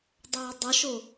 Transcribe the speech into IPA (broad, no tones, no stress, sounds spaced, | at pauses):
dˤ ɛː dˤ ə ʃ o